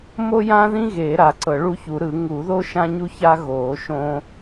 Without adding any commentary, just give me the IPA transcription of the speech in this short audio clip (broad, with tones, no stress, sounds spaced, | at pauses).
m o˥ j ã˥ ð ĩ˥ ɣ eː˨˩˦ ɾ a˨˩˦ ǀ ɤ˨˩˦ ɭ u˥ ç u˨˩˦ ɾ ɯ˨˩˦ ŋ u˨˩˦ ð o˥ ʃ ã˥ ɲ u˥ ç a˥ ɣ oː˨˩˦ ʃ õ˥